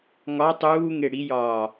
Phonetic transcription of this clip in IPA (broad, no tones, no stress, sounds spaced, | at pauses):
ŋ ɒ tˤ uː ŋ e ɽ i j ɒː